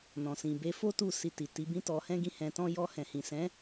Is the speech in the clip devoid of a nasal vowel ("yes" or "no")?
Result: no